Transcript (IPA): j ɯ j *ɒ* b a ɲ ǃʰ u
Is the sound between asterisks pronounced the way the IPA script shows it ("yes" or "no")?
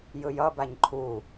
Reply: no